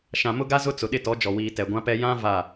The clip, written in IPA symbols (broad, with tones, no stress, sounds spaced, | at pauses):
ʃ ã˨ m ʊ˦ ɡ a˦ z ʊ˦ t͡s ʊ˨ ɗ ɪ˦˨ t ɔ˨˦ d͡ʒ ɔ˨ w iː˨ t ɛ˨ ɡʷ ã˦ p ɛ˦ j ã˦ v a˦˨